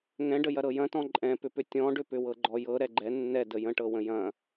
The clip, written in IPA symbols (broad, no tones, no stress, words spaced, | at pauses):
ŋɛ̃ɖə jɐɾɤjɐ̃tɔ̃ ǃʼɛ̃pʏpʏ tʲɔ̃ɖʏ pʏwɤɡ͡ǃɔjɤ ɾɛɡ͡ǃɛ nːɛ dəjə̃ʈɤwə̃ jɐ̃